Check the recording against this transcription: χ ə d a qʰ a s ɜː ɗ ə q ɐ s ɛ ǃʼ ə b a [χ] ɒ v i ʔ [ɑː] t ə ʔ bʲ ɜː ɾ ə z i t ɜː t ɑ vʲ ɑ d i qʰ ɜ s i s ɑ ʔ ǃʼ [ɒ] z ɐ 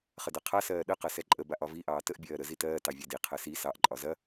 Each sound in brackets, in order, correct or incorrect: incorrect: ʔ, correct, correct

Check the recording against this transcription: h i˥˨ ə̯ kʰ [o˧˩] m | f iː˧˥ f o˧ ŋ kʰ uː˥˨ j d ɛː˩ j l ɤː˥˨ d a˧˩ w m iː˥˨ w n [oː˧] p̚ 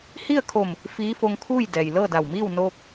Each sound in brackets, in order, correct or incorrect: correct, correct

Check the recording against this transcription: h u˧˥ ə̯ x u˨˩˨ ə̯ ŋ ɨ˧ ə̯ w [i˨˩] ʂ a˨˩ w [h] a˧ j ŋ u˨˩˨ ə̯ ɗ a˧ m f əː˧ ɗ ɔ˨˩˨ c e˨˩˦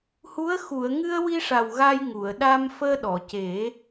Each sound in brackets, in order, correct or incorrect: incorrect: i˧, incorrect: ɣ

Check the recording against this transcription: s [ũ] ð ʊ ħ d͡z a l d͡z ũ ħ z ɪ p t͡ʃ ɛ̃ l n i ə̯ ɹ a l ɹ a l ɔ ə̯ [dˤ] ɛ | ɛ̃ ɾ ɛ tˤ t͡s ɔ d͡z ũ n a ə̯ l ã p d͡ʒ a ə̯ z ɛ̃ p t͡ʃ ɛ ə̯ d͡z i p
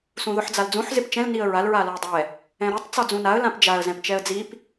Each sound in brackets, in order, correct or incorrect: correct, correct

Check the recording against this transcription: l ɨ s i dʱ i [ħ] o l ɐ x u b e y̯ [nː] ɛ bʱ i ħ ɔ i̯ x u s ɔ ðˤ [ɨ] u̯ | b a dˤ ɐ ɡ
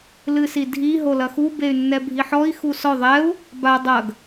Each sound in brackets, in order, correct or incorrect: incorrect: ɦ, correct, incorrect: ɛ

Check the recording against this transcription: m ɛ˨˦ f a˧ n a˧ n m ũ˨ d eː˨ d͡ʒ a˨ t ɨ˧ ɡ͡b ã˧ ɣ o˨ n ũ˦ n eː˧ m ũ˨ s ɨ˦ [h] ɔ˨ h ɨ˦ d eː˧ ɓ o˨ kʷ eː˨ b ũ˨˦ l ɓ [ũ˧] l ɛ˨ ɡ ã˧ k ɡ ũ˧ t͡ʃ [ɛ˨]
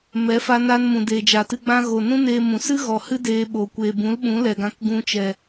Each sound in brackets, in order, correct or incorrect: incorrect: ɣ, incorrect: ũ˨˦, correct

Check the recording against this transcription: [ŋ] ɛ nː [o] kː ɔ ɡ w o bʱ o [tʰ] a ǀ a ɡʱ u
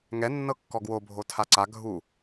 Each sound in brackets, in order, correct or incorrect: correct, incorrect: ɤ, correct

